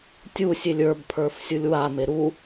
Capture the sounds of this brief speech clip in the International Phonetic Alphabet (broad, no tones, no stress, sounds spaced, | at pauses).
tʲ u sʲ e lʲ ə˞ b pʰ ə˞ f sʲ u lʲ w a m e ɾ u